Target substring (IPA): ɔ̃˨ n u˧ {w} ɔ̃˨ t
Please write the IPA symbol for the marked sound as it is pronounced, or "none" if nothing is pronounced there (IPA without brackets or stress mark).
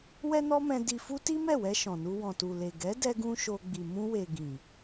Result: w